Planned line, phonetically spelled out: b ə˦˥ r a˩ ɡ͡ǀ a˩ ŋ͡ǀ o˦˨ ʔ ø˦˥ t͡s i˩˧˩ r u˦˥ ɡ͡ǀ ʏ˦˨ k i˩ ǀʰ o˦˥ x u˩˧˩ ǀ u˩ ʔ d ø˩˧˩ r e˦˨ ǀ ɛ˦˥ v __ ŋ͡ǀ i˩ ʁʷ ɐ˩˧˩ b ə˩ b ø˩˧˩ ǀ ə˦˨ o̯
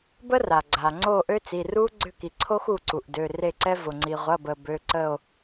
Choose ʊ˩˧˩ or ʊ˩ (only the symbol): ʊ˩